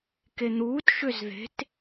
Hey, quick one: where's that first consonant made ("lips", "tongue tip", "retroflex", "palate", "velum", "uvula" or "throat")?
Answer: velum